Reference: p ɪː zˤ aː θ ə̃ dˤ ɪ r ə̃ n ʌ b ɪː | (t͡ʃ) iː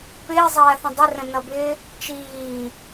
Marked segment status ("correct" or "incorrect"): correct